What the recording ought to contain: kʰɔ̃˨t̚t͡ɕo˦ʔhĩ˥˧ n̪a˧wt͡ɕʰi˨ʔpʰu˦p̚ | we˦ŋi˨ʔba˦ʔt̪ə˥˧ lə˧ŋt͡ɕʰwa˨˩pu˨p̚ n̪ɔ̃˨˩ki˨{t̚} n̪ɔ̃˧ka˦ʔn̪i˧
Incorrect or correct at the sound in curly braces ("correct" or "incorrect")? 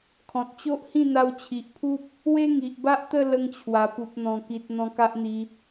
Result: correct